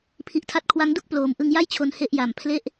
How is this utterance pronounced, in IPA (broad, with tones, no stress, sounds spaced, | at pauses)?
pʰ i˨˩ ʔ tʰ a˦˥ t̚ kʰ w a˦˥ ŋ d u˥˩ k̚ p l oː˨˩ m ʔ ɯ˧ ŋ j a˥˩ j t͡ɕʰ o˧ n h e˦˥ ʔ j a˨˩ m pʰ l e˥˩ ʔ